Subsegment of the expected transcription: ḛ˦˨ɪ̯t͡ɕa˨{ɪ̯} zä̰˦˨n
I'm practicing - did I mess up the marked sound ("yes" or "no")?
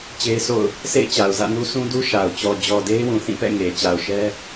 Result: yes